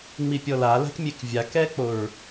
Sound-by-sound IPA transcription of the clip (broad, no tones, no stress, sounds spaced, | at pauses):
ŋ͡m i pʲ ɔ l a l a̤ k mʲ e k vʲ a k ɛ k͡p o ɹ